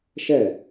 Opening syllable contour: falling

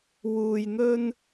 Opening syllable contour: low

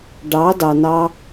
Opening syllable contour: rising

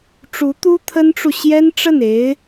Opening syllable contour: rising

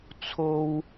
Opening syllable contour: high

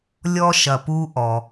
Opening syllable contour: high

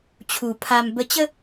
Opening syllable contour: low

